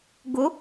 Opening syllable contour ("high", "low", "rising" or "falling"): rising